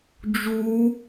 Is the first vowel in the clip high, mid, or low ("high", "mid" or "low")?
high